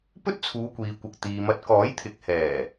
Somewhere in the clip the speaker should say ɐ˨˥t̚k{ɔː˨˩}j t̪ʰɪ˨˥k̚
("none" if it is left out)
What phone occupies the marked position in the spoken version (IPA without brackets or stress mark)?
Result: ɔː˨˥